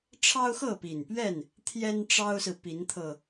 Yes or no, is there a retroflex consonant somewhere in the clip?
yes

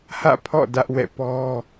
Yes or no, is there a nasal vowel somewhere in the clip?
no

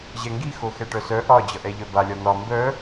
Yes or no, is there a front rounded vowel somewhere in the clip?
yes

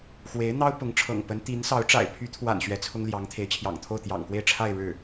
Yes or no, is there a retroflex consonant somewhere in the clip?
yes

